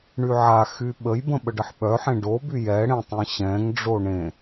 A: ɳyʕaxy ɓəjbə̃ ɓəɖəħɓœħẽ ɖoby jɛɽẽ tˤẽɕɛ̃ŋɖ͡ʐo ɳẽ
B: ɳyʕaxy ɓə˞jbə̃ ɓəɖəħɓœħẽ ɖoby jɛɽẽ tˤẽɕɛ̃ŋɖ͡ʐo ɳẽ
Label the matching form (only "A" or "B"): A